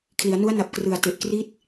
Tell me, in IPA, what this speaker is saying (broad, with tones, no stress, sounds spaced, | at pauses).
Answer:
kʰ l i˩˦ a̯ n u˦˥ a̯ n a˨˩ p̚ k r ɯ˨˩ a̯ t e˨˩ ʔ k r i˦˥ t̚